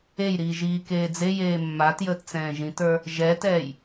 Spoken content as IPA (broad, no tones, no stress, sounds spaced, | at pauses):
e j ɾ iː ʒ iː k eː d͡z e j eː mː a t j əː t t͡s ɛ̃ː ʒ ĩ t ə˞ | ʒ ɛ t ɛː j